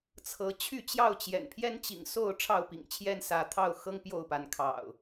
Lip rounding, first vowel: unrounded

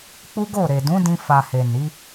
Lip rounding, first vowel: rounded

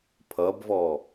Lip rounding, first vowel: unrounded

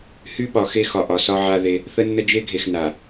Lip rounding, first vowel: rounded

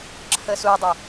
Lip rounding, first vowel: unrounded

